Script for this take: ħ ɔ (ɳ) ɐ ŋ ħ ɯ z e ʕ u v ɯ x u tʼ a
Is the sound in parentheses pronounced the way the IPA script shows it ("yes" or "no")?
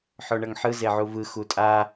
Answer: yes